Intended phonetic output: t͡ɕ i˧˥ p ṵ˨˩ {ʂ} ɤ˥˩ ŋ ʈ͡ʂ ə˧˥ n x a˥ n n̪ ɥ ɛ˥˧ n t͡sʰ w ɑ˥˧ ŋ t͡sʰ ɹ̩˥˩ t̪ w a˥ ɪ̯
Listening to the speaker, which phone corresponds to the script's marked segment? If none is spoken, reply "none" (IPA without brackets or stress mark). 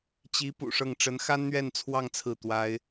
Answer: ʂ